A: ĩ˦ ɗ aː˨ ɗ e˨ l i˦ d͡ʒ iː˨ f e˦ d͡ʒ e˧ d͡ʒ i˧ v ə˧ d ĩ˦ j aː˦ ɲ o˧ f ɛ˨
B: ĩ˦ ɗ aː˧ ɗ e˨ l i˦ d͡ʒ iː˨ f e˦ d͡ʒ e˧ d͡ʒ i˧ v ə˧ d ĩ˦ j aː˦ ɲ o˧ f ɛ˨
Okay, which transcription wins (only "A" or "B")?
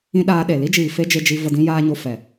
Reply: B